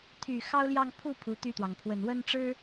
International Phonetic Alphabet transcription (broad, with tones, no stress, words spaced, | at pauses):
t̪ʰy˨˩ xɑ˥ʊ̯ljɑ˥˧ŋ pʰu˥˩ pʰu˧˥t̪y˥˩t̪wɑ˩ŋ pʰwə˨˩nwə˥nʈ͡ʂɻ̩˥